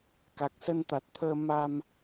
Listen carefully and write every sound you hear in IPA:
ka˨˩k̚sə˧nt̪a˨˩t̚t̪ʰəː˧ ma˧m

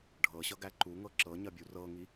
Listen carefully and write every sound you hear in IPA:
ɖʱɤɕʌɡæ ǃuŋɤ ǁɤɲɐbʲu rɤŋi

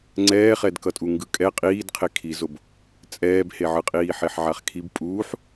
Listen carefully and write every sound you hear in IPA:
ŋ͡ǀɛːχɛdkʌtʼu ŋɡɯkʼɛ qʼiːdqʰe kʰizob | t͡sʼɛːbheʕɯqʼiː ħeħʕaχkʰib pʼuːħ

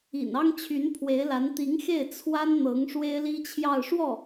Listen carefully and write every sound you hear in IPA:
ḭ˨˩n ɑ˥ŋt͡ɕʰy˧˥npʰwe˧˥ɪ̯la˧˥n t̪i˧˥ŋxe˥˩ɪ̯ t͡sʰwa˥nn̪ɤ˧˥ŋ ʂwe˥ɪ̯li˥t͡ɕʰjɑ˥˧ʊ̯ ʂwɔ˥˩

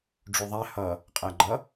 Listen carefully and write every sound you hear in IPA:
ɖ͡ʐuðˤæ hʌ | qʼæɡ͡ǃʌ

